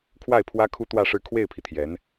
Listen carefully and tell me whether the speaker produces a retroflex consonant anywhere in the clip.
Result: yes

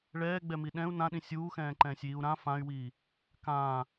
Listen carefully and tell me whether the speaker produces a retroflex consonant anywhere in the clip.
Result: yes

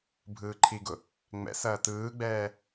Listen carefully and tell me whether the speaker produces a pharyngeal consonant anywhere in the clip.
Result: no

